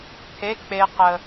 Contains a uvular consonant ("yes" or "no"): yes